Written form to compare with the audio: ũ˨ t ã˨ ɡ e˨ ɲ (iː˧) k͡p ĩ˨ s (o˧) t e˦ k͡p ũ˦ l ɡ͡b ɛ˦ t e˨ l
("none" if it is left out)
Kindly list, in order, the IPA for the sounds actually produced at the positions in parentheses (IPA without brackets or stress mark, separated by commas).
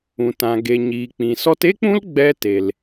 iː˨, ɔ˧